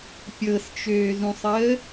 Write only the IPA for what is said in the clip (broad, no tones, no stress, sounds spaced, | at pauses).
pʲ ɤ s t͡ʃ øː z ũ sˤ əː